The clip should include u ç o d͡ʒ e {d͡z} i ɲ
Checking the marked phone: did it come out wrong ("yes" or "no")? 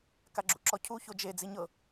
no